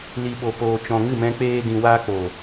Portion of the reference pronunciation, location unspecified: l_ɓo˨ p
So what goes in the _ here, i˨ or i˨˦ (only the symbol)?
i˨